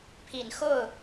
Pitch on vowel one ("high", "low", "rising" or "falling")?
low